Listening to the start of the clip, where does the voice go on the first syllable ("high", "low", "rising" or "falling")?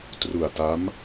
low